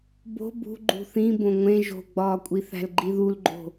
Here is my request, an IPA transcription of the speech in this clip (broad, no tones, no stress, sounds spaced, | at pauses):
b o̤ b ṳ ɡ͡ǃ ṳ θ ĩ b õ ŋʷ ẽ ʒ o̤ ɡ͡b ɒː kʷʼ i θ æ̤ l ɡ͡ǃ i ð u l ɡ͡ǃ o̤